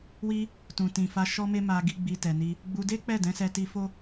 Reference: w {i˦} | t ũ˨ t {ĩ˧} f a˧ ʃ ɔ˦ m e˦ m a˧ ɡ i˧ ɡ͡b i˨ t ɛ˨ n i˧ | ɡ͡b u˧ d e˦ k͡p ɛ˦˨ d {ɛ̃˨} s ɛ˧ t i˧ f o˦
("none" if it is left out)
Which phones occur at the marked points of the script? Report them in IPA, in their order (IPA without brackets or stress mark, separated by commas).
i˦, ĩ˨, ɛ̃˨˦